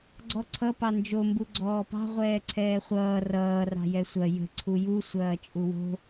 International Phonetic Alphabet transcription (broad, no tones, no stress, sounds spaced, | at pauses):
ɡ͡ǀ ɔ ǀʰ ʌ p ɑ n d͡ʒ o m b u ɡ͡ǀ ɔː p ɑ̤ ʁʷ ɛː ǀʰ ɛː χʷ ʌː r ʌː r ɑ̤ j ɛ sʷ ɐ j ə̤ ǀʰ u j u sʷ ɐː t͡ʃʼ u w o̤